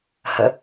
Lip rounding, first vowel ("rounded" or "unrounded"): unrounded